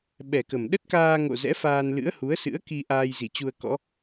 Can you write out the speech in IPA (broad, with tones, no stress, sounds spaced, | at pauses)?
ɓ ɛ˨˩ k ə˨˩ m ɗ ə˦˥ t̚ k aː˧ ŋ o̰˧˨ z ɛ̰˧˥ f aː˧ n l ɨ̰˧˥ ə̯ h u˨˦ ə̯ s ɨ̰˧˥ ə̯ k i˧ ʔ aː˧ j z i˧˩ t͡ɕ u˧ ə̯ k ɔ̰˧˥